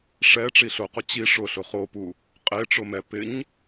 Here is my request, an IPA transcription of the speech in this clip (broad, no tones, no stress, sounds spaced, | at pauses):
ʂ ɛ ʈ͡ʂ i ɬ ʊ q ʊ t͡ɕ i ʂ ʊ ɬ ʊ χ o p u | qʼ e ʈ͡ʂ ʊ m ɛ p ɪ ɲ